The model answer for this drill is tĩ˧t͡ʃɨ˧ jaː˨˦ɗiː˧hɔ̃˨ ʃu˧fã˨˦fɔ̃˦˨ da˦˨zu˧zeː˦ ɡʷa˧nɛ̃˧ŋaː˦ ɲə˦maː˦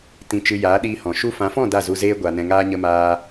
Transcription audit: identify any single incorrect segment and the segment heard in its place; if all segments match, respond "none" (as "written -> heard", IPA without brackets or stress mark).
none